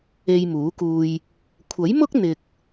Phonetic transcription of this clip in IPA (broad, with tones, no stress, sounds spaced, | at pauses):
e˧ j m uː˨˥ k uː˧ j | kʷʰ ɐ˨˥ j m ʊ˥ k̚ n̪ ɪ˧ k̚